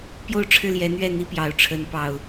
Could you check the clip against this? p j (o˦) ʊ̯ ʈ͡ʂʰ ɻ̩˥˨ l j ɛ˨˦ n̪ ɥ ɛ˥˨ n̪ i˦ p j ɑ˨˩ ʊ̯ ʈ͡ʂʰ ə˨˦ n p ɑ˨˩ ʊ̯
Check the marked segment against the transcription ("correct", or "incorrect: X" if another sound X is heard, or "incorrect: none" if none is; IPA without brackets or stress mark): incorrect: o˥˨